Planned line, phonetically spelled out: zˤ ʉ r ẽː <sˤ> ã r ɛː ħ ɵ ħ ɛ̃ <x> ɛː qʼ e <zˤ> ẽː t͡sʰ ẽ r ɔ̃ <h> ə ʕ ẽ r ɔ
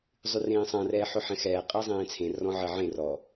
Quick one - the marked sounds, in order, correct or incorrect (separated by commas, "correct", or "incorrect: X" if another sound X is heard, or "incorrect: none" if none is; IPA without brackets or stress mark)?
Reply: correct, correct, correct, incorrect: ʕ